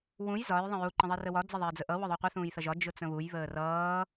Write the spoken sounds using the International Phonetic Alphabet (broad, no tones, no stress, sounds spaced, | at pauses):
w ũ j z ɒ j ðˤ ə̃ j u ǃ ə̃ ðˤ ɪ r ə w ɒ d͡z ə ðˤ ɪː d͡z ə ʔ ʌ w ʊ ðˤ u qʷ ɪ θ ũː j θ ʌ ʒ ɒ d͡ʒ ʊ t͡s ə̃ β u j β əː r ʌː